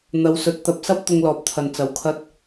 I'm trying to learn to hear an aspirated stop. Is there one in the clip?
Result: yes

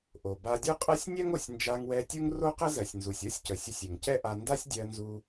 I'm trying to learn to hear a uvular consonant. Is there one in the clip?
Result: yes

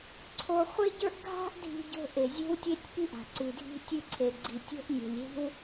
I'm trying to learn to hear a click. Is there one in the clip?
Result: yes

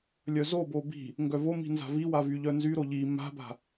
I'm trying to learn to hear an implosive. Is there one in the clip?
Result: no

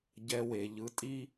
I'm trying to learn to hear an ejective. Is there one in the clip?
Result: yes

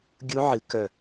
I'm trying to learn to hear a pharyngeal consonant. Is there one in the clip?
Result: yes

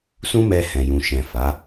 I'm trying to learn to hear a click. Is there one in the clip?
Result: no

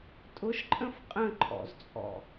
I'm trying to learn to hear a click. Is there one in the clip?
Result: yes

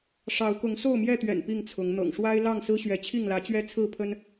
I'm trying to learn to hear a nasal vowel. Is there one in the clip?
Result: no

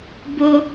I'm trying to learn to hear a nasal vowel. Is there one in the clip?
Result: no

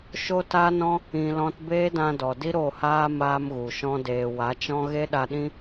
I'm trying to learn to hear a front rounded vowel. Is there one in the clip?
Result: no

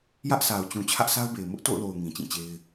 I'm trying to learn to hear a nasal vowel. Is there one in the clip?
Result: yes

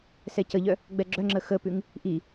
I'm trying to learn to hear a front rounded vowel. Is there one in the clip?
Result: yes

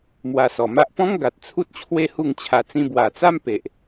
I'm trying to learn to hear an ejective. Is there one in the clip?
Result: no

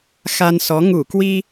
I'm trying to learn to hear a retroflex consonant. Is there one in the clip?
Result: no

